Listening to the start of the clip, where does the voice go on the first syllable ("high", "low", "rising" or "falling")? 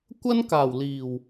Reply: high